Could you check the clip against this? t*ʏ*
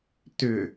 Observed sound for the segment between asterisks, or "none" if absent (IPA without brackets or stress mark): ʏ